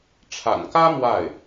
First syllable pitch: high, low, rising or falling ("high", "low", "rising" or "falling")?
low